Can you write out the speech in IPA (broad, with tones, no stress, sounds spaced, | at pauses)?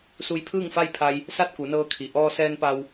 s u˧ j pʰ ɯː˥˨ ŋ f a˥˨ j pʰ a˧ j | s a˥˨ t̚ k u˩˧ n ɤː˧ kʰ i˩ ʔ ɔː˧ s ɛː˧ n p a˧ w